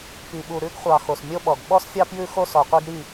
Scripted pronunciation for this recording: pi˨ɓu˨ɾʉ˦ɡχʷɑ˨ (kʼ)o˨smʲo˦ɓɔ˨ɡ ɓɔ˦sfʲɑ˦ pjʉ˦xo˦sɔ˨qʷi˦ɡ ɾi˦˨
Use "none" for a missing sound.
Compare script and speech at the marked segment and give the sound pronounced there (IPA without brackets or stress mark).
x